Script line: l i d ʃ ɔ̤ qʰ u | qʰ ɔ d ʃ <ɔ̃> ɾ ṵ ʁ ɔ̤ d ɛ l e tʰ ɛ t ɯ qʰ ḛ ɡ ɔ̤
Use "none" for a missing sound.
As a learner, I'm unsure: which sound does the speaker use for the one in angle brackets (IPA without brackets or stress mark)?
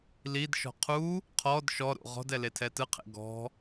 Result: ɔ